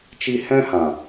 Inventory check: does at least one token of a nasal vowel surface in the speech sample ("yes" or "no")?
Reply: yes